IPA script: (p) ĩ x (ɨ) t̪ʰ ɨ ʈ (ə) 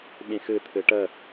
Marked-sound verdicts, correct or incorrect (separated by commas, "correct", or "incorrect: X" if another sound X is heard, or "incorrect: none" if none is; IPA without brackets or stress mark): incorrect: ɓ, correct, correct